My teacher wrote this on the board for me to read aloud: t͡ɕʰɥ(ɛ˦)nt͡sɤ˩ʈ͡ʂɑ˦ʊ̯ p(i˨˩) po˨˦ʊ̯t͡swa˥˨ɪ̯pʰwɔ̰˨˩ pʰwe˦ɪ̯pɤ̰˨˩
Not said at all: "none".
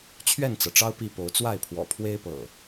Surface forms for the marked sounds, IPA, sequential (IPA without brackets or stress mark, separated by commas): ɛ˥˨, i˥˨